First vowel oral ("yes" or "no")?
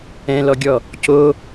no